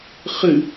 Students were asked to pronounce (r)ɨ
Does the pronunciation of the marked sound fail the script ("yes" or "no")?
yes